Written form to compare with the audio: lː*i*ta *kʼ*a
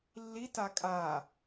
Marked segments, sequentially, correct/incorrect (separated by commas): correct, correct